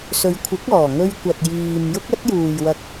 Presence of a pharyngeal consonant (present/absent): absent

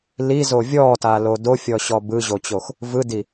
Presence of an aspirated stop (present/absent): absent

